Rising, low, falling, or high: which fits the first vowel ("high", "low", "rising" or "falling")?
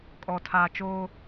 low